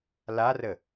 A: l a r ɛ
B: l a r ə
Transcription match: B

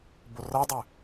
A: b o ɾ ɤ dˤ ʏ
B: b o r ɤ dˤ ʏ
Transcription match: B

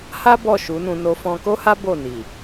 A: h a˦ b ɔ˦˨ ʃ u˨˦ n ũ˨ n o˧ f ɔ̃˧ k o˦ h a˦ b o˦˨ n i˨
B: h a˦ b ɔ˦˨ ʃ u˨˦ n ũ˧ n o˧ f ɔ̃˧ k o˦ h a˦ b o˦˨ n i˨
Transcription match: B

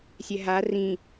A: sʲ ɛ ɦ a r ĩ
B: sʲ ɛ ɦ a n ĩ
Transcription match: A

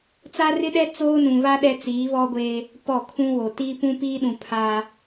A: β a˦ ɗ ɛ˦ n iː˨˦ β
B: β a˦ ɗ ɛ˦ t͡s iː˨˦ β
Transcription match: B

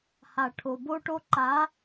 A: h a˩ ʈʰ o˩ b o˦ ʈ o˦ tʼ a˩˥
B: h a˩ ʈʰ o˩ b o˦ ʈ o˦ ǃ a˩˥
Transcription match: B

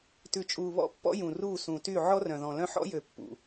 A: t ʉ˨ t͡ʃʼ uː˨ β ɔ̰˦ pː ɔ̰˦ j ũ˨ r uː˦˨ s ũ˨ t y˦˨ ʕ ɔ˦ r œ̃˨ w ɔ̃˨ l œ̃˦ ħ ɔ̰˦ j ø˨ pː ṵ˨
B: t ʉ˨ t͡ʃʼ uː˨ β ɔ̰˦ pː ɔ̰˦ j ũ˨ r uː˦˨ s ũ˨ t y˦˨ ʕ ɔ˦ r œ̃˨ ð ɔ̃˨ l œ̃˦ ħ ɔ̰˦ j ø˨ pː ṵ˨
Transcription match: B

